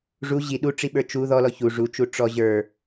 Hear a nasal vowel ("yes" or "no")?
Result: no